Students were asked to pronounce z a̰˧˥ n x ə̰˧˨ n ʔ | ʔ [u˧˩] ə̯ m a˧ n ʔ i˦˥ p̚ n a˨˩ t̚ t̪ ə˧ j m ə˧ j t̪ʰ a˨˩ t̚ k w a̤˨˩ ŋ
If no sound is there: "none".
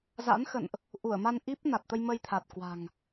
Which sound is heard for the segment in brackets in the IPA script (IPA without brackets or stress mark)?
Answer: u˧˩